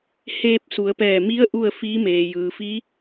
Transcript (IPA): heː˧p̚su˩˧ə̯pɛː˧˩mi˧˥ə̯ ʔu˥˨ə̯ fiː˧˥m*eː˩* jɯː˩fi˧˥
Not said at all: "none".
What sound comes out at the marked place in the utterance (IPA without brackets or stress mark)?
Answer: eː˩